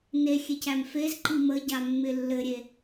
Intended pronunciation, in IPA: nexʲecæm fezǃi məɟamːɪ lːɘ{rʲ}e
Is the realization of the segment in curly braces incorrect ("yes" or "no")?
yes